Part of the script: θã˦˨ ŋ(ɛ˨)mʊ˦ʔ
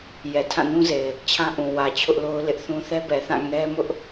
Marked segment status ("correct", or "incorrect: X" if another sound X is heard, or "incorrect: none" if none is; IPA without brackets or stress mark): incorrect: ɛ˦